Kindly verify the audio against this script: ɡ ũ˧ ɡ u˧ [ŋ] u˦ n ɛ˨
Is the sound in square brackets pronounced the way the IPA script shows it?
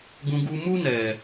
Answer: no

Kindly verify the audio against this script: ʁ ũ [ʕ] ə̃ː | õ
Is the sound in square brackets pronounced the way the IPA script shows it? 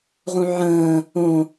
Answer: yes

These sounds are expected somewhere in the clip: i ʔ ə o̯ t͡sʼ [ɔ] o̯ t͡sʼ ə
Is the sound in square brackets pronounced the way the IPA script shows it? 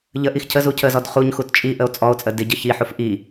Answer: yes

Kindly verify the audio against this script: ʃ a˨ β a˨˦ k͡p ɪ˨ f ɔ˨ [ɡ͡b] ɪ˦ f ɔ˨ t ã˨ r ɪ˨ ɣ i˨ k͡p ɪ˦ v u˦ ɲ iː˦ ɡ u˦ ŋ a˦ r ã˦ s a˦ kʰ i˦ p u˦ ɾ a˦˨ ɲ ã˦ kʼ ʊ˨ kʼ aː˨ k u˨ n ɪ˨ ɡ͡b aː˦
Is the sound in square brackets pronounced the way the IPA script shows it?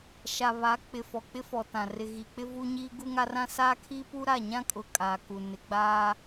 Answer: no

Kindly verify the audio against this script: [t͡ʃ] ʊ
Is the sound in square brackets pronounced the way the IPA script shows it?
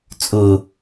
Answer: no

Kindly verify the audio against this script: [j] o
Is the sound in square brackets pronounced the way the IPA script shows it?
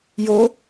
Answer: yes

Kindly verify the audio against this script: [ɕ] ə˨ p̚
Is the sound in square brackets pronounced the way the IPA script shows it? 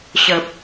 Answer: yes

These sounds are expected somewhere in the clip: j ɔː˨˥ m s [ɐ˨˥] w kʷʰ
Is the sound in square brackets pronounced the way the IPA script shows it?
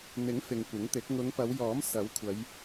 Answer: yes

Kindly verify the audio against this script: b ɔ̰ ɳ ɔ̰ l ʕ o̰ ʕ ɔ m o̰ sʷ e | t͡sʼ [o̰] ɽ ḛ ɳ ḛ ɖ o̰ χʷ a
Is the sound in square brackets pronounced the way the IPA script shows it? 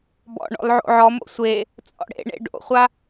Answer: no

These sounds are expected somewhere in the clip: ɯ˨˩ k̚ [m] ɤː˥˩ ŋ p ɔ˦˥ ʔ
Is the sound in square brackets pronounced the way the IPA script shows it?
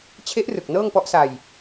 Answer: no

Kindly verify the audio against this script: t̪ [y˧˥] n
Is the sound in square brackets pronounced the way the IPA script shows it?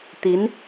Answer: no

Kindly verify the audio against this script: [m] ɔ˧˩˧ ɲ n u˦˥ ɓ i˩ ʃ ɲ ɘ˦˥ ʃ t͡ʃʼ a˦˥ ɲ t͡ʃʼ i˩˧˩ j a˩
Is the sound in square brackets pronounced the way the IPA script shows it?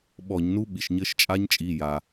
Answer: no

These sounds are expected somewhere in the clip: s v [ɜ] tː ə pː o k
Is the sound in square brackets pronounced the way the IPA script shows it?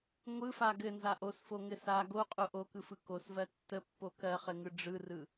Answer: yes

